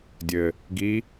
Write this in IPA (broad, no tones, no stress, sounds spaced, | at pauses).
dʲ ɘ | ɡ i